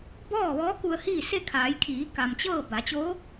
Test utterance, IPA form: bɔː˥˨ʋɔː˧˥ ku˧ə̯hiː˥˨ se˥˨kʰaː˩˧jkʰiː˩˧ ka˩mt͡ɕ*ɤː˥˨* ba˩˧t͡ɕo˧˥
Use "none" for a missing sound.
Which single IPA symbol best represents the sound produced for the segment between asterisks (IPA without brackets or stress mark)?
ɤː˥˨